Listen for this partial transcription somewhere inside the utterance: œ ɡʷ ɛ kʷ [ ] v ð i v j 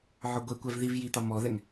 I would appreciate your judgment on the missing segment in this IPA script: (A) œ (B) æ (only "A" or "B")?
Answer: B